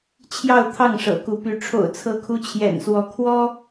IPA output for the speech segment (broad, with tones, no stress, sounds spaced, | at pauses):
t͡ɕʰ j ɑ˥˧ ʊ̯ t̪ʰ ɑ˥˩ ŋ ʂ ɤ̰˨˩ k u˧˥ p y˧˥ ʈ͡ʂʰ o̰˨˩ ʊ̯ t͡sʰ ɤ˧˥ kʰ u˧˥ t͡ɕʰ j ɛ̰˨˩ n s w ɔ˧˥ kʰ w ɔ˥